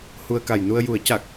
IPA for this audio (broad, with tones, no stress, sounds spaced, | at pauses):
h u˧ ə̯ k a˨˩ j n u˧ ə̯ j u˨˩˦ ə̯ c a˨˩ k̚